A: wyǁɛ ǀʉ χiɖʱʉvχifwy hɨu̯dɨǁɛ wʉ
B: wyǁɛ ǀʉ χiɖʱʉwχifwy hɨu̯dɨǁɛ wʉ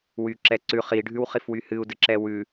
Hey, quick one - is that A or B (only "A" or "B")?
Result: B